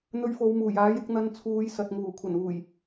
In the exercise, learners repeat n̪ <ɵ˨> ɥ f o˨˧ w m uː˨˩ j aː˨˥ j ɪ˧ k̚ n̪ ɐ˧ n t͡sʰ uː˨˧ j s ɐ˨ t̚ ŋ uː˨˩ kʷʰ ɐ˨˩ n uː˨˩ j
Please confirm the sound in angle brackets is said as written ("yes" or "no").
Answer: no